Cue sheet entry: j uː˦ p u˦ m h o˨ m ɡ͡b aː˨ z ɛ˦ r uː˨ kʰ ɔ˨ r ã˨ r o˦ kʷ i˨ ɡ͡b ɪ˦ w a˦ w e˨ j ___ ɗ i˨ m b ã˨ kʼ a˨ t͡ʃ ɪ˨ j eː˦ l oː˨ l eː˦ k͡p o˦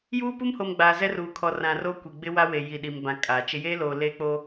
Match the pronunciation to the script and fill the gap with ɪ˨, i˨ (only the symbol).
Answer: i˨